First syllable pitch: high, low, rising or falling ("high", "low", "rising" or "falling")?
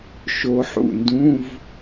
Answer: rising